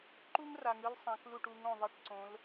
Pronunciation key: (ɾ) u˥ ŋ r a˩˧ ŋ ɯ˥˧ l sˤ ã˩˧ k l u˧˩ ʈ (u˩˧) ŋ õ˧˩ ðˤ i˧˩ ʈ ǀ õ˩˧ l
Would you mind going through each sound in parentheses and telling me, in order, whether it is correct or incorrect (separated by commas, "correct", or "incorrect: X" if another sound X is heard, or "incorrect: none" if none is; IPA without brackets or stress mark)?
incorrect: ǃ, correct